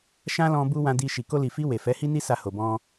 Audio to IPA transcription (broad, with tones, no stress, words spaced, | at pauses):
ʃã˦lɔ̃˧ bu˦ wã˧di˧ ʃi˨ko˧li˨fi˧ we˨ fɛ˨˦hi˦ni˦ sa˧ho˨bɔ̃˧